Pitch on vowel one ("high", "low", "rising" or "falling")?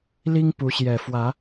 high